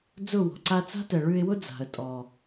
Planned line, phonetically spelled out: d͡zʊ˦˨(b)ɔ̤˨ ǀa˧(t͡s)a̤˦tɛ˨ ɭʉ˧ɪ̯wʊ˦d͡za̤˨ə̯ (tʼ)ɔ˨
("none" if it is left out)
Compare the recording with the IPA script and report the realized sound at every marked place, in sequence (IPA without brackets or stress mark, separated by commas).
w, t͡s, tʼ